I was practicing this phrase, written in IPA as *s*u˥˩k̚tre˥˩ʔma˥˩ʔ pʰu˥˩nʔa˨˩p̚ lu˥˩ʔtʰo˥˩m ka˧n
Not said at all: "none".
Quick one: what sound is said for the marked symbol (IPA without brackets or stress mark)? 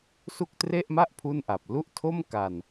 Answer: s